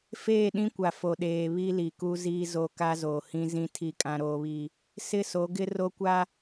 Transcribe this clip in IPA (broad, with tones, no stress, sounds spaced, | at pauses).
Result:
f eː˦˨ ɗ ĩ˦ kʷ a˨ f o˨ ɗ eː˨ β i˦ l i˨ k u˦ z iː˦ z o˦˨ k a˦ z oː˨ h ĩ˦ z ĩ˦ tʰ i˦ kʼ ã˦ ɾ oː˦ β i˦ | s ɪ˦ s o˨˦ ɡ ɪ˦ r o˦ kʷ a˦